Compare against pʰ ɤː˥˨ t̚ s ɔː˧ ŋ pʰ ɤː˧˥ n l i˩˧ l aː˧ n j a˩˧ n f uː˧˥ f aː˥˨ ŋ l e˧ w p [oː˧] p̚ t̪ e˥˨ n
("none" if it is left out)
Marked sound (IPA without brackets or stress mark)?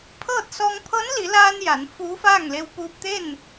uː˧